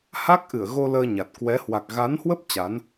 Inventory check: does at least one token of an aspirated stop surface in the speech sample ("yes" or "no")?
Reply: no